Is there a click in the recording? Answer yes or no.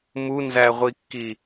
no